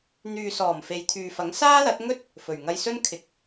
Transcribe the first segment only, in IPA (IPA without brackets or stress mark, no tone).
n̪